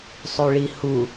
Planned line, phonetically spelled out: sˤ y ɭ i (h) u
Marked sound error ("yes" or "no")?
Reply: no